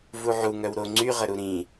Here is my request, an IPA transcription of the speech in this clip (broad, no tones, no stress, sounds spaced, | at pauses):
v u ʕ u ŋ œ w ɾ o ŋ͡ǀ y ʁ ə ɾ u ɾ ĩ